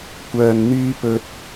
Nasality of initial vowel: oral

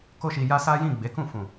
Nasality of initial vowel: oral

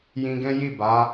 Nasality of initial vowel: nasal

